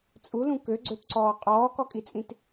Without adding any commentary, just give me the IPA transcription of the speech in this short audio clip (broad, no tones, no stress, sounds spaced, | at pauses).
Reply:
t͡sʼ u l ũ k ø ɡ͡ǀ ø t ǀ ɔː qʼ ɔː k ɔ kʼ i t͡sʼ ĩ t